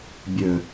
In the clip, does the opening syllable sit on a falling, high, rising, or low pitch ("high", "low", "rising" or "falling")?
low